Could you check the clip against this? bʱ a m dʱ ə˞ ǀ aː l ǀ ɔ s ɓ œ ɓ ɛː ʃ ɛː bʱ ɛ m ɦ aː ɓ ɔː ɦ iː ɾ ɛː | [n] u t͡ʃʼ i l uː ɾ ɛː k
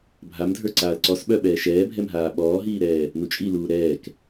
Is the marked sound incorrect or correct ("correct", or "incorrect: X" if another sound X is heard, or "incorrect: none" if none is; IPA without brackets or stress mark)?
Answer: correct